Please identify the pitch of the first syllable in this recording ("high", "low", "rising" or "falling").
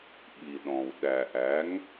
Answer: low